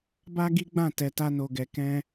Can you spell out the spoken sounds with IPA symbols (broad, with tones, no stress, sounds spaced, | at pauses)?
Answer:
b a˦ ɡ i˦ ɡ͡b ã˦˨ t ɛ˧ t a˦ n o˧ ɡ ɛ˧ k ɛ̃˦